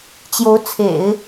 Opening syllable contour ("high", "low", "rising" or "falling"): rising